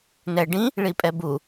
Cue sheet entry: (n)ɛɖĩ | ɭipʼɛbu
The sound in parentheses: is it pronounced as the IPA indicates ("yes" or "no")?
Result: yes